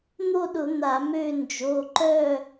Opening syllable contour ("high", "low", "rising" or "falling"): falling